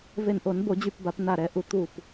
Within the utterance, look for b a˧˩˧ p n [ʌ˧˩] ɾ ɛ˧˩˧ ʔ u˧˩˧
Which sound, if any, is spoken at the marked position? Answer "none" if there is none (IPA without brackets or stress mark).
a˧˩